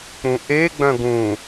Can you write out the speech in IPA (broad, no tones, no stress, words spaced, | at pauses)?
k͡pũʔe ɡ͡bœ̃ɡũ